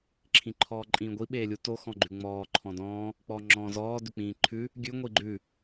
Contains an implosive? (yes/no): yes